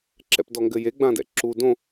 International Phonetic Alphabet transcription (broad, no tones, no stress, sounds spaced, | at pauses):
ǁ ɛ̰ p d ɔ ŋ ɡ ɘ j e ɡ͡b ã d ɛ̰ ǁ u d õ